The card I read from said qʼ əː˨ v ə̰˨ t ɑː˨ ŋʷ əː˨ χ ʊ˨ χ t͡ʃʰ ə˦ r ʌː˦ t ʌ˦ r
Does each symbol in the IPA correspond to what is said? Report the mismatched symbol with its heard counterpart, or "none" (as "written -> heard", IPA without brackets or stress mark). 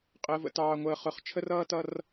none